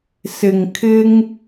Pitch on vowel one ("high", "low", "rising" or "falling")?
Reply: low